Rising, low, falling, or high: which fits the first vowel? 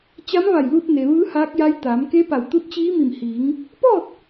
rising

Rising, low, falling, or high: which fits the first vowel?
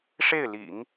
falling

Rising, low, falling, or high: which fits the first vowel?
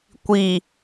low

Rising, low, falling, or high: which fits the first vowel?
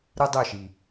high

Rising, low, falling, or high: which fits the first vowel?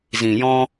low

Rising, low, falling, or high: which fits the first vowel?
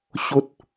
high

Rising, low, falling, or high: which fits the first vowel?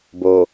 low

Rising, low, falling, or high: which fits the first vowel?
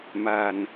low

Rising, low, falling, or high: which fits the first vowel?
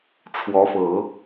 rising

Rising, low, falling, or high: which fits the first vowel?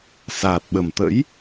low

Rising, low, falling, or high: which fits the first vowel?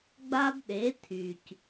high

